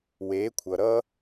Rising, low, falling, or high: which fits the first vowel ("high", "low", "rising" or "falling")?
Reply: rising